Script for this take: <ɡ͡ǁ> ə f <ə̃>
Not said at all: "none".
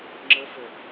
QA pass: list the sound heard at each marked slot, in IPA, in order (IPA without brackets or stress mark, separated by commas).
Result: ŋ͡ǁ, ə